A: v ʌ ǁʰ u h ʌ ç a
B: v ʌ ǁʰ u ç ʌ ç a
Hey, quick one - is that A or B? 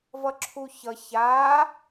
B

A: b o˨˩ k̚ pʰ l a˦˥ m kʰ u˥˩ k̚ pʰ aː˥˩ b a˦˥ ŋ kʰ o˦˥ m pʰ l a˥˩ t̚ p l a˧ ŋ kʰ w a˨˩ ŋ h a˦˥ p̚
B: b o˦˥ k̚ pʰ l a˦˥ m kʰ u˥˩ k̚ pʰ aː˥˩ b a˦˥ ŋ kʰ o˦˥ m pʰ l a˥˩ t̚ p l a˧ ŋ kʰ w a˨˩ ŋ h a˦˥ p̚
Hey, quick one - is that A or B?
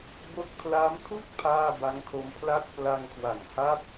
B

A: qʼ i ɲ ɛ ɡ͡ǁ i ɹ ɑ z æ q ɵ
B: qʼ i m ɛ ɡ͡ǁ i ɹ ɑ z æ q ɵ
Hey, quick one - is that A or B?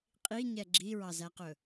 A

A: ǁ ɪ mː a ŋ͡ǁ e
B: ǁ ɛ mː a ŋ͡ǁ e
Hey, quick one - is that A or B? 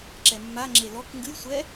B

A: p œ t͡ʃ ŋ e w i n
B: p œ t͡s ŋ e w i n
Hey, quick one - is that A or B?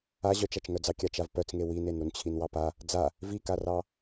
B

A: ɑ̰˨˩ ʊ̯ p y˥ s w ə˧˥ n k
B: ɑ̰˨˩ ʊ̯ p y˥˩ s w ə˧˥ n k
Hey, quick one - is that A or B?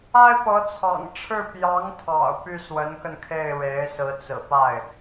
B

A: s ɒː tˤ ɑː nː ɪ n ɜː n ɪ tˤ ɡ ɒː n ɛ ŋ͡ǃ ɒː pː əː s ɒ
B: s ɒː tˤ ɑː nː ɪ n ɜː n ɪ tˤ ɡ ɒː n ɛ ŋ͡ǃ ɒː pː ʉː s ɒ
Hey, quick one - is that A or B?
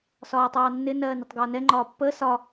A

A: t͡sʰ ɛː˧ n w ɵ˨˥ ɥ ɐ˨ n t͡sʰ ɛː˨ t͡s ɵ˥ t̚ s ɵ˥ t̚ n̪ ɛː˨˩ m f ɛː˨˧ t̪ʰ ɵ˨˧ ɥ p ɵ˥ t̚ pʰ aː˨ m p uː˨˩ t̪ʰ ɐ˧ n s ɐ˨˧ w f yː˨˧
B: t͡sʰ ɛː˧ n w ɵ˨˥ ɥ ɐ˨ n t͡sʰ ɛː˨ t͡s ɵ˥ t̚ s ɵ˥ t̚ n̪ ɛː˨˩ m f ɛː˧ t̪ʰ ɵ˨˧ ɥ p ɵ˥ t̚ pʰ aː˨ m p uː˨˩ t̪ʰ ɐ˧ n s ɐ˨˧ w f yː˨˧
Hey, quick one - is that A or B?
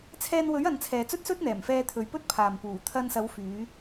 B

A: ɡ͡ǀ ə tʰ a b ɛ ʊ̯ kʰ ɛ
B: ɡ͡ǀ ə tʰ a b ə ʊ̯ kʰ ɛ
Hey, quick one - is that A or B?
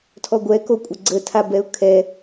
A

